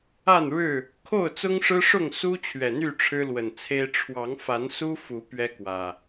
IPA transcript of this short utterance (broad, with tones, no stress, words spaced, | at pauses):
a˥˨nɻɻ̩˥˨ | kʰo˥˨ʊ̯t͡sʊ˦ŋʂɻ̩˦ʂʊ˥˨ŋ su˦ t͡ɕʰɥɛ˨˩n̪y˥˨ ʈ͡ʂʰɻ̩˦lwə˨˩nt͡sʰe˦ɪ̯ ʈ͡ʂʰwɑ˨˦ŋfa˨˦nsu˦ fu˨˦ pɥɛ˦kwä˨˩